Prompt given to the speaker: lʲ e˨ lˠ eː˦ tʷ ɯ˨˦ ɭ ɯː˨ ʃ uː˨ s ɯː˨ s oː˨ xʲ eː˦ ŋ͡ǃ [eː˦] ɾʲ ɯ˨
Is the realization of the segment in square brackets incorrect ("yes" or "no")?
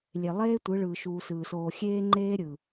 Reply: no